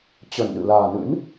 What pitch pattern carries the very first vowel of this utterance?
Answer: low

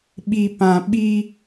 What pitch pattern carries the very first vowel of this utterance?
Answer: low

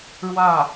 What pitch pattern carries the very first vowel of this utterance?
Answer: falling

